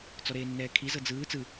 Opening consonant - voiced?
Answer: no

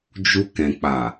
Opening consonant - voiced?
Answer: yes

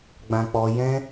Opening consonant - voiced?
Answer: yes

